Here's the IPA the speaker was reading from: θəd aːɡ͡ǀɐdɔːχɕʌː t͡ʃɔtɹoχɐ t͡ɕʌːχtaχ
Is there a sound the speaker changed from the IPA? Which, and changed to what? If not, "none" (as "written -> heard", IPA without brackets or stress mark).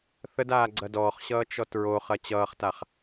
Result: none